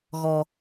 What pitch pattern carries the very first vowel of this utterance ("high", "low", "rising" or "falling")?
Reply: low